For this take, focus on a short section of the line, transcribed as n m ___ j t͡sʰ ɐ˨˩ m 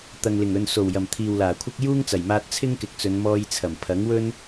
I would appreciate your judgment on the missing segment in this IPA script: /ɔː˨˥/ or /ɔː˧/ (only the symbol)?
ɔː˧